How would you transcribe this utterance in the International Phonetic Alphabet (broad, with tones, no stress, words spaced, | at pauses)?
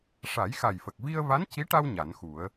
ʂa˨˩˦jxa˨˩jfə˨˩k̚ vi˧ə̯va˧˥nci˧˥ʈa˧w ɲa˨˩˦nxu˨˩˦ə̯